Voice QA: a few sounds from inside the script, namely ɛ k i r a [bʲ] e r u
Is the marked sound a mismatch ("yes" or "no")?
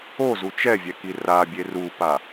no